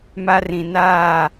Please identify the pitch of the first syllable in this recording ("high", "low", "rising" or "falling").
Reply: high